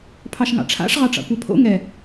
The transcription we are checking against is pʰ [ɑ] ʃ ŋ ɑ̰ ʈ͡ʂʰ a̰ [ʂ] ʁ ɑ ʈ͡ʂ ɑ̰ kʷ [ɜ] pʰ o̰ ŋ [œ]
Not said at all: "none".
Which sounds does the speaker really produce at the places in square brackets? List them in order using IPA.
ɑ, ʂ, ɜ, ɛ

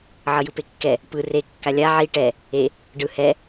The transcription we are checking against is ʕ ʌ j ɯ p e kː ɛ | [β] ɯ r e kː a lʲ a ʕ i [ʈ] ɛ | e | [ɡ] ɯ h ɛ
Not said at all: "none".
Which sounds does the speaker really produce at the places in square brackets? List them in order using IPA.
p, ʈ, ɖ

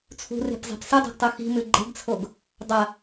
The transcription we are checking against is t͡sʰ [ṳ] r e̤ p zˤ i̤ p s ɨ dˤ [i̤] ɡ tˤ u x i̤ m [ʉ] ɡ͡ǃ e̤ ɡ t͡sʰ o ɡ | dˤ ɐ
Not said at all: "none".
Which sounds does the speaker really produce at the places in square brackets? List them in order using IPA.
ṳ, e̤, ʉ

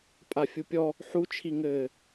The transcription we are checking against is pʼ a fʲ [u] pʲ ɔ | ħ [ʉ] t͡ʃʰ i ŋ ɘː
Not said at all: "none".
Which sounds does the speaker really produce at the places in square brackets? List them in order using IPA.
u, u

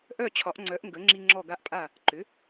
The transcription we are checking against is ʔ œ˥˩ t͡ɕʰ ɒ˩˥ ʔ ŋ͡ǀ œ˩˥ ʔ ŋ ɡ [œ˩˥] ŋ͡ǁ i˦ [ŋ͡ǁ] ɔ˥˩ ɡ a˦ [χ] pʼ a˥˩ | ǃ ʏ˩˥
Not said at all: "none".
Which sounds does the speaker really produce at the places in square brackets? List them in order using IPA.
ə˩˥, ŋ͡ǁ, ʔ

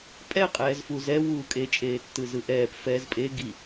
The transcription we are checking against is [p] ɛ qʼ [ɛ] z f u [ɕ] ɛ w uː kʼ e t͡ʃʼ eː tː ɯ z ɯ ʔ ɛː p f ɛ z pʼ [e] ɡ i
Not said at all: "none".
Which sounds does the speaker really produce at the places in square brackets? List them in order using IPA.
pʼ, ɛː, z, e

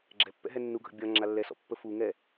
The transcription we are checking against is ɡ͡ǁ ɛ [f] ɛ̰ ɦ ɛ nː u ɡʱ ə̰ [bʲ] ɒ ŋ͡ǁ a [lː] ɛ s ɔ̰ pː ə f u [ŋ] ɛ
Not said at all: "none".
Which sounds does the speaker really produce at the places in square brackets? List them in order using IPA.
pː, bʲ, lː, ŋ

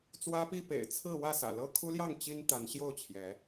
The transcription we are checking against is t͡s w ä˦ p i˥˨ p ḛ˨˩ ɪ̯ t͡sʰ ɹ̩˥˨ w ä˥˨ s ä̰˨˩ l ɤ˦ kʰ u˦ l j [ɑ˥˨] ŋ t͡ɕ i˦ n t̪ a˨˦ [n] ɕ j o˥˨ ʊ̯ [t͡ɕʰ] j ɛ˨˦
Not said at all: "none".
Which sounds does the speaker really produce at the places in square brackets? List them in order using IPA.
ɑ˥˨, n, t͡ɕʰ

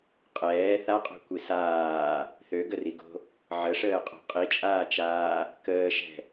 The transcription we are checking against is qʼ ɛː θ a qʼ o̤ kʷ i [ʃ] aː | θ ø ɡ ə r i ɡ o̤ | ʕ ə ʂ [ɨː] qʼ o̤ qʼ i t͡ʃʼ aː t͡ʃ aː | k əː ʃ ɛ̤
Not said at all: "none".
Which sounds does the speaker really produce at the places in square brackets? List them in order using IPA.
s, əː

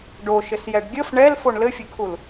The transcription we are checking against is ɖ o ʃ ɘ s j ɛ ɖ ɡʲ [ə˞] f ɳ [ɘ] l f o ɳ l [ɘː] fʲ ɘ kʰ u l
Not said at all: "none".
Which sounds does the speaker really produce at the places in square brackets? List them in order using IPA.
ə, ɛ, ɘ

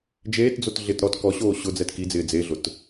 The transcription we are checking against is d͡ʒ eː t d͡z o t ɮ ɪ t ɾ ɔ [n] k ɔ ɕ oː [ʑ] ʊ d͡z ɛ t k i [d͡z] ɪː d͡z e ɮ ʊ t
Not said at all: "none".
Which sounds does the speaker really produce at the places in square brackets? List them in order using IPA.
t, ɕ, d͡z

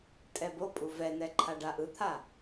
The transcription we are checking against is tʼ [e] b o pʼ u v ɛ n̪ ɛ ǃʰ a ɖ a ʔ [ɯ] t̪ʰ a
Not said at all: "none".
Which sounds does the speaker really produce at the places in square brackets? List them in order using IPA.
ɛ, ɯ

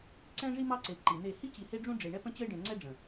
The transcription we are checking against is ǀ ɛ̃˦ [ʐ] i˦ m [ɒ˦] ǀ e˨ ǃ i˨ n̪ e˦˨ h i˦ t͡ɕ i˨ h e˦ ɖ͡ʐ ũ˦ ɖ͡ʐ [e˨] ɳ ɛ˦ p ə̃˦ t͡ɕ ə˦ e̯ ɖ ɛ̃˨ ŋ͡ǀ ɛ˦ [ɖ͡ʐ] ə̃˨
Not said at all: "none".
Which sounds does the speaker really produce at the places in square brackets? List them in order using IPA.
ʐ, ɑ˦, e˨, ɖ͡ʐ

